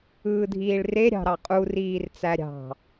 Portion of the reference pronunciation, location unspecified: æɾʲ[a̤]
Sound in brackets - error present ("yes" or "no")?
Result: yes